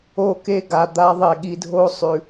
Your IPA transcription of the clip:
o˦˨ke˦ɡa˨ d̪a˦ ðˤe˨ɠi˨dʱo˦ sˤʉ˨

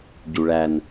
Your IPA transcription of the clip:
ɟuɭæn

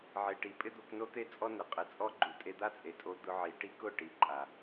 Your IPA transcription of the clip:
ʕe˨ʈi˨ pʼɪ˦d̪o˧kno˦t̪e˦ t͡sʼɔ˦nɪ˨qʼɪ˨ t͡sʼɔ˦ɡ͡ǃu˨ tʼe˧d̪a˦t͡sʼe˨tʼo˧ d̪ʊ˧ʕi˨ ʈi˦kʊ˦˨ ʈi˨ǃʼa˨

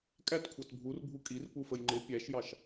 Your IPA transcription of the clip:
kʼætkʷʰɑt bʱurbʱu kʼirpufəj ŋ͡ǃɪ pʲæʃjɑʃ

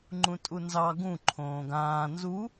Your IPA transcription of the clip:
ŋ͡ǃũtʼunzɑ ɡũ ǃʰõːɡãː nzu

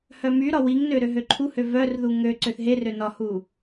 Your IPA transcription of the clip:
hœmyɾɒ wiŋnø ɾøɦøǃʰuhø vœrðu ŋø ǀøθɦerø nɒhu

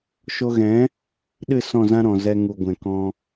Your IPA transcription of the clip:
ʃo˧ɣɛ̃˨˦ | ɗɨ˦˨ sɔ̃˦˨zã˦ɾɔ̃˨ zɛ˧ŋu˨ ɡʷɛ̃˨kɔ̃˧

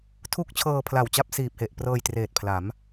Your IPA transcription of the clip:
tʰu˥˩k̚t͡ɕʰɤː˧pʰla˨˩w t͡ɕa˥˩p̚siː˨˩p̚he˨˩ʔ prɤː˧jtreː˨˩t̚pʰla˩˦m

